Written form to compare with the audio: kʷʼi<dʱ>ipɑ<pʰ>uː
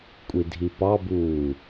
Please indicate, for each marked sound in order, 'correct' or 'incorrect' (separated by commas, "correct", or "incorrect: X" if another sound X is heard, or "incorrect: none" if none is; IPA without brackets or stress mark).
correct, incorrect: b